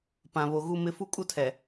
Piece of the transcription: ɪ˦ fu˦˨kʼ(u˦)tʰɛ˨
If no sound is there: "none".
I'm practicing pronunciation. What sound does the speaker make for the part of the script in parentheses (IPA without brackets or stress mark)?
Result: u˦